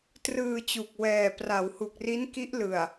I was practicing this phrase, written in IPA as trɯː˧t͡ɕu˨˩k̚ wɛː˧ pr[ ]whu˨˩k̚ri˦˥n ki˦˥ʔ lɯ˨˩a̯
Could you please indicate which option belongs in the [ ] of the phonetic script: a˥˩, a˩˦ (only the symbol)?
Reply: a˩˦